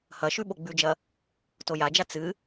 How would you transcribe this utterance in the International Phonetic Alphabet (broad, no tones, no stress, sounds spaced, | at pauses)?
h ɐ ʃ ʉ ɓ o ɡ͡b ʉ d͡ʒ ɐ | t o j a d͡ʒ a t͡s ɨ